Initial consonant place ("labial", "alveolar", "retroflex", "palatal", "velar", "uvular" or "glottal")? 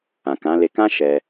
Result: velar